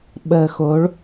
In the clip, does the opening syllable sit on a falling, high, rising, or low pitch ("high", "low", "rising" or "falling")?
low